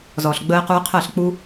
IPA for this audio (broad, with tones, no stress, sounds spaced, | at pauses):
z ɔː˨ ɬ ɡ͡b əː˧ ɪ̯ q uː˧ ɪ̯ qʰ əː˦˨ ɬ k͡p u˦